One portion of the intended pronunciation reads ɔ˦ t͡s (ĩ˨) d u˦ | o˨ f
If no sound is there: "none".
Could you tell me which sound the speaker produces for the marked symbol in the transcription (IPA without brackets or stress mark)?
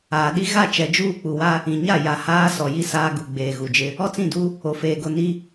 ĩ˦˨